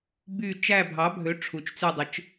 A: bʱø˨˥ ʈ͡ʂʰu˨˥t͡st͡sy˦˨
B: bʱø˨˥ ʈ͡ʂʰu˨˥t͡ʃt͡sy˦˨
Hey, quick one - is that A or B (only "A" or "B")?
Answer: B